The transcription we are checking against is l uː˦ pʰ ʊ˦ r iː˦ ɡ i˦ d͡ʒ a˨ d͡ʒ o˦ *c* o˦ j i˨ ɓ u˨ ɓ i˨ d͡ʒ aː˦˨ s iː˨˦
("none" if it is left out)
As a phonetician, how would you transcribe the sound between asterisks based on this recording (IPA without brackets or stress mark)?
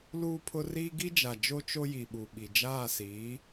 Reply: t͡ʃ